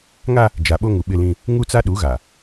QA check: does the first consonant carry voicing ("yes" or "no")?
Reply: yes